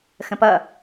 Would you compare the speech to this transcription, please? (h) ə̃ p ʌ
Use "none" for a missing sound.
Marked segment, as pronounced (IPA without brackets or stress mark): x